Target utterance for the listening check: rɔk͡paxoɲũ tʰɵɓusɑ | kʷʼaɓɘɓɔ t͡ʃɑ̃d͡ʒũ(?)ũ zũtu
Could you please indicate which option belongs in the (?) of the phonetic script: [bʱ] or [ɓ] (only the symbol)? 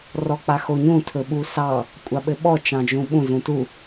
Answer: ɓ